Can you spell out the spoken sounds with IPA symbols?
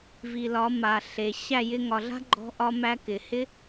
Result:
v i˨ l ɒ˨˦ m a˨ ɬ e˨ ɕ æ˦˨ j ɪ˧ ŋ ɒ˨ ɮ a̤˦ ɡ͡ǃ ɔ̤˦ ʔ ɒ˦ m æ˦ k ɪ˨ h ɪ˦

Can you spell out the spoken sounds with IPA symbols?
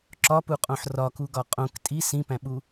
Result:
ǁ ɒ p u qʼ õ ħ r ɒ k u ɡ ɒ qʼ õ k tʼ i s ĩ p æ̃ ɓ u

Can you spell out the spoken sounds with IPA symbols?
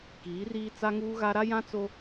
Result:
k iː˨˦ r iː˦ t͡s a˦ ŋ uː˦ ɣ a˦ ɾ a˦ j ã˦ t͡s o˦

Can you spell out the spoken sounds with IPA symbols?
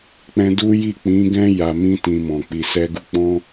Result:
k͡p ɛ̃˧ d u˦ j i˦˨ k͡p ĩ˨˦ ɡ ɛ̃˦ j a˧ m ĩ˦ t ĩ˧ m ɔ̃˨ k͡p i˨ s ɛ˧ ɡ u˧ k͡p ɔ̃˦

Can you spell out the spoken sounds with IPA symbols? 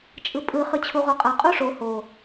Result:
t͡ʃʼ ɯ pʼ ɯ χ ɯ t͡ɕʰ u ʁ o qʼ a qʼ u ʂ o h o

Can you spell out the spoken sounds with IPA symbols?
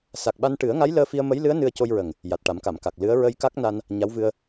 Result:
s a˨˩ k̚ ɓ a˧ n ʈ ɨ˨˩˦ ə̯ ŋ a˧˥ j l əː˧ f i˧ ə̯ m ə˧˥ j l ɨ˧˥ ə̯ n ɨ˧ ə̯ c o˧ j ɹ ə˨˩ ŋ | j a˨˩ t̚ ʈ a˨˩˦ m k a˨˩˨ m k a˨˩ k̚ l ɨ˧˥ ə̯ ɹ ə˧ j k a˦˥ k̚ n a˧ n | ɲ a˧˥ w v ɨ˧ ə̯

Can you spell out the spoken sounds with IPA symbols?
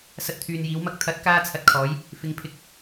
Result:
s ɐ˧ t̚ t̪ʰ yː˨ n j iː˨˧ w m ɐ˨˥ k̚ t̪ʰ ɐ˨˥ t̚ k aː˧ t͡sʰ ɐ˨ t̚ kʰ ɔː˨˧ j | f ɪ˨ ŋ pʰ ɪ˨˥ k̚

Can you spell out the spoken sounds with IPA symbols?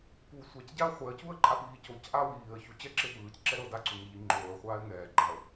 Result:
p u sʷ a c ɟ a ə̯ χʷ ɛ ə̯ c u ə̯ ǃʼ a p iː c o c ʔ a w iː ə̯ ç u t͡ɕ ɛ ǁ e p ɯː c ǁ ɛ ɾ ɤ d a ǀ u ŋ e ʎ i ŋ͡ǃ oː ə̯ χʷ aː ɪ̯ ŋ ɛː ɡ͡ǃ a ə̯

